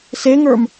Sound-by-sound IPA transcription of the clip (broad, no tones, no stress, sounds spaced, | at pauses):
s e ŋ ə˞ m